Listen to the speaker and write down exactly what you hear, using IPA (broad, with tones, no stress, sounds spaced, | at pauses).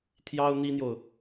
t̪ʰ j ɑ˥ ʊ̯ n̪ i˥ n̪ j o˨ ʊ̯